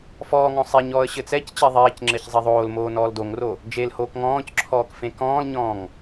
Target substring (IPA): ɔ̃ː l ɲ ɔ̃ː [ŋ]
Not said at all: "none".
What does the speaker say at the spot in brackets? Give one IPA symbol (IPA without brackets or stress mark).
ŋ